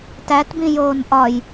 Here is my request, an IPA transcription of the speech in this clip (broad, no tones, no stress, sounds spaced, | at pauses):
t æ t b ĩ j oː n ʔ ɒ j